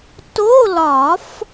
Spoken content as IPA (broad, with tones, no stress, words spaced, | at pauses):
to˧˥˧lɒ˨˩˦f